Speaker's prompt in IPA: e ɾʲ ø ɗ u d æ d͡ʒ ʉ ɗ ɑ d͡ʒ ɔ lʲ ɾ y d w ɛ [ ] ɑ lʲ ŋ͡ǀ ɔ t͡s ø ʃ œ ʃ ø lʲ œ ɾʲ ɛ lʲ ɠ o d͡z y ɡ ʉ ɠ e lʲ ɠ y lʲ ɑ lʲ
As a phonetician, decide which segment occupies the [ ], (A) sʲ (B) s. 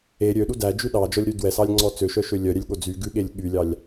B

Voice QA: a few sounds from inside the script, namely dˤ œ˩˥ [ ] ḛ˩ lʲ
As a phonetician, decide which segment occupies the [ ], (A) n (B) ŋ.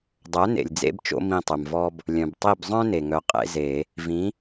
A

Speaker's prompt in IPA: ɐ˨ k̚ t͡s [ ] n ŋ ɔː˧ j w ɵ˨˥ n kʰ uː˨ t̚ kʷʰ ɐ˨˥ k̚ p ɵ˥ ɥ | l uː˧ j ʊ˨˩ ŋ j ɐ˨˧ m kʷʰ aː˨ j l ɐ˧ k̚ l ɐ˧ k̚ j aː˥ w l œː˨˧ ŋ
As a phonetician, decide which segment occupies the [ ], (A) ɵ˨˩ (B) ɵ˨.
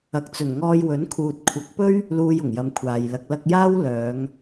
A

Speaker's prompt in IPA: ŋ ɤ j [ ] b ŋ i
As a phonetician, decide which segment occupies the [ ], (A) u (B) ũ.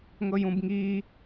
B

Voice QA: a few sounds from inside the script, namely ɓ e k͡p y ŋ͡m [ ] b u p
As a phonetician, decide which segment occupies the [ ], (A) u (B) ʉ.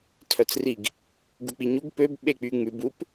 B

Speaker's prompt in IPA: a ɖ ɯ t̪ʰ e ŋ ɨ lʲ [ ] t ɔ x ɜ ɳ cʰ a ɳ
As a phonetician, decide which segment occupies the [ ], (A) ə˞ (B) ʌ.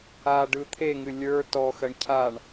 A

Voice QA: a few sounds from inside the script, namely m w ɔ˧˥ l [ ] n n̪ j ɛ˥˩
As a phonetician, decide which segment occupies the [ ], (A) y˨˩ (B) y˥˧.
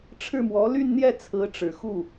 B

